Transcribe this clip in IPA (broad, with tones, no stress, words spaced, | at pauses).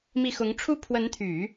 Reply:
mi˥˩ xʊ˧˥ŋʈ͡ʂʰu˥ pʰwə˧˥nt̪ʰy˨˩˦